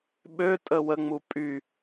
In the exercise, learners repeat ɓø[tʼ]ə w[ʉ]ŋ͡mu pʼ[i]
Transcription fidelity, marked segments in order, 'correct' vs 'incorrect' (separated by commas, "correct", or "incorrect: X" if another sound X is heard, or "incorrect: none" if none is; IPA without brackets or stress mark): correct, incorrect: ə, incorrect: y